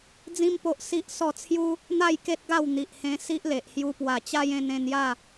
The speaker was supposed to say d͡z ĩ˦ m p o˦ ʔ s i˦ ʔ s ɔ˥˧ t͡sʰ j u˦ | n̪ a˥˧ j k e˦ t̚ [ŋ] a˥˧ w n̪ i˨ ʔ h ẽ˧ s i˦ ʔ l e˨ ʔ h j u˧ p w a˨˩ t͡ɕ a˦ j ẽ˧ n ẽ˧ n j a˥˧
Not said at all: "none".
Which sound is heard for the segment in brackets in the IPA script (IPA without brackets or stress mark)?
ɡ